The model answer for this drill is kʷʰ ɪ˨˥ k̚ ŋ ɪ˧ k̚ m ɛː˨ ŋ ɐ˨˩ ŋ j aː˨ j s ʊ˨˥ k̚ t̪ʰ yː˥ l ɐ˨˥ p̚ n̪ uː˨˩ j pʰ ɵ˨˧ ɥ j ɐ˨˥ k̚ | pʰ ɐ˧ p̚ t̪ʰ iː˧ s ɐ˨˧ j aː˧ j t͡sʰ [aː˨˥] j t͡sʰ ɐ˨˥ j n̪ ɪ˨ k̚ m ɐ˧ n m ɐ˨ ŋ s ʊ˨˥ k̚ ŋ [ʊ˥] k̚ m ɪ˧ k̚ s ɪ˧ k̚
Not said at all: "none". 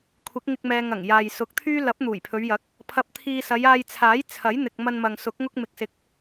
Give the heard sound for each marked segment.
aː˨˥, ʊ˥

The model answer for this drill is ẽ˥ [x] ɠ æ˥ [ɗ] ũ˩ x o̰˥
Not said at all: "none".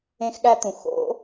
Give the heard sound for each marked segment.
x, t̪

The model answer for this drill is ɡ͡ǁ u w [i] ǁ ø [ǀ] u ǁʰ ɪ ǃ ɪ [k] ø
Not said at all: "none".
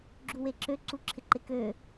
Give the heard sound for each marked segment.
e, ǀ, k

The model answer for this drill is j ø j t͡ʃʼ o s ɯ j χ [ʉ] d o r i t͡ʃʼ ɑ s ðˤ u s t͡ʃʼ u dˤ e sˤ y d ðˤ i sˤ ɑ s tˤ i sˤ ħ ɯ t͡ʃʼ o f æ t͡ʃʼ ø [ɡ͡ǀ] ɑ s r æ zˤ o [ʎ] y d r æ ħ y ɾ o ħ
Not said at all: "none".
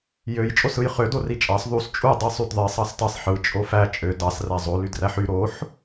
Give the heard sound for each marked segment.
ø, d, l

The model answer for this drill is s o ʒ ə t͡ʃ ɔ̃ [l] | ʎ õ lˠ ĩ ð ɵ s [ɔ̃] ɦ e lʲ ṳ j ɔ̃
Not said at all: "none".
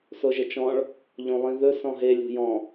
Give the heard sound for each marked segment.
ɭ, ɔ̃

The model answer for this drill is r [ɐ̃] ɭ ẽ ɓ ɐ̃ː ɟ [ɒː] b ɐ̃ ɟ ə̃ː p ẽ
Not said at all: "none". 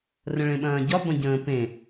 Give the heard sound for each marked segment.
ə̃, ɒ

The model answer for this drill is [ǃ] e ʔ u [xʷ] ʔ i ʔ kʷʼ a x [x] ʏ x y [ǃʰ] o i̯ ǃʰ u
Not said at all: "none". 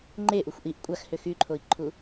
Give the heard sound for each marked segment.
ŋ͡ǃ, xʷ, h, ǃʰ

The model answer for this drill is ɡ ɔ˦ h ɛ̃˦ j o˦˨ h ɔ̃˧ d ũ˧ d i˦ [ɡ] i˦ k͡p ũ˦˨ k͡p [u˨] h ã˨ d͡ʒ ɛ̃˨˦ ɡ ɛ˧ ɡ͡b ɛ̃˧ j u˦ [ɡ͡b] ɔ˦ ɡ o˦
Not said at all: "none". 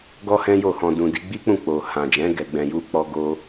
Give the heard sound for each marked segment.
ɡ͡b, o˨, k͡p

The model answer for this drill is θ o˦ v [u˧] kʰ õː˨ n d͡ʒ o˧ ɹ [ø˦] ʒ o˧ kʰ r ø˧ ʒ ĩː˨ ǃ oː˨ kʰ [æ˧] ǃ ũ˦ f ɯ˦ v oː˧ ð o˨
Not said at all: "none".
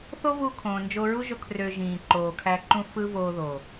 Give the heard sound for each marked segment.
u˧, u˦, æ˧

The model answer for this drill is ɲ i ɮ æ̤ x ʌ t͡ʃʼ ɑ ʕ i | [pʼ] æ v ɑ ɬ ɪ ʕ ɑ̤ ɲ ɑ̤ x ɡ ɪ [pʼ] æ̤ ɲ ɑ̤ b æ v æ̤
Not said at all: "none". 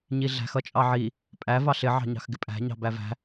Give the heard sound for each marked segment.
pʼ, pʼ

